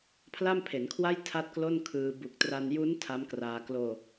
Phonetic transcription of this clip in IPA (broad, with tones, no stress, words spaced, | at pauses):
pʰla˥˩mpʰe˩˦nkʰwa˥˩j tʰa˥˩t̚klo˥˩nkʰɯː˧ bu˨˩k̚tra˧n ju˦˥n tʰa˦˥mkraː˧ kloː˧